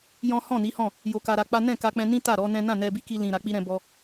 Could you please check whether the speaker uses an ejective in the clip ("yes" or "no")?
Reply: no